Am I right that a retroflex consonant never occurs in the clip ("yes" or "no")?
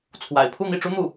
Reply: no